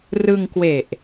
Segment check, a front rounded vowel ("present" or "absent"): absent